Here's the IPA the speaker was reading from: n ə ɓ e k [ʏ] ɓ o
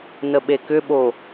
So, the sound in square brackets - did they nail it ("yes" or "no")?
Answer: yes